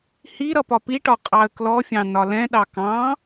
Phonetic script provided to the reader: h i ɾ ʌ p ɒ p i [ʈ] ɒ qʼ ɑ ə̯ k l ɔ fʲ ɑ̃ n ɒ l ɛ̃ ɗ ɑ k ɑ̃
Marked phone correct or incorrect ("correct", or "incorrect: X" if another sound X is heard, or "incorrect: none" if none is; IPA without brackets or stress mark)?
correct